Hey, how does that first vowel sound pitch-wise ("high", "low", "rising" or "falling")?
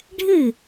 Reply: falling